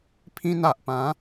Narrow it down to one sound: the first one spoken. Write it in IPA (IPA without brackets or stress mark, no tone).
pʰ